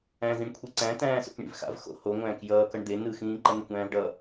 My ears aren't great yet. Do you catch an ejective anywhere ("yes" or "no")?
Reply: no